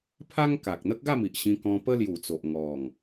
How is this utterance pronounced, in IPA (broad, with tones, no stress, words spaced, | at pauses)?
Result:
pʰa˦ŋ ka˨k̚n̪ə˦k̚ɡa˥˧mi˨ʔ ɕĩ˧kɔ̃˧ pə˦lju˨˩t͡so˨ʔ ŋɔ˨˩ŋ